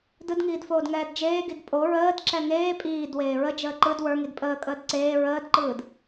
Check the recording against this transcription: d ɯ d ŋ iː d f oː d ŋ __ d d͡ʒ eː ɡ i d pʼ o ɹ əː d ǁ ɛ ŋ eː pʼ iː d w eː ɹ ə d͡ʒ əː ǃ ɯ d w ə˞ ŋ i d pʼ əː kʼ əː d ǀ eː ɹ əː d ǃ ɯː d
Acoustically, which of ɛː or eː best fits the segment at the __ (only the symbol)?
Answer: ɛː